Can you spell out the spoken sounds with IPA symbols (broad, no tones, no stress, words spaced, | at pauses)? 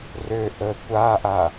rø ʔə kʷaʔa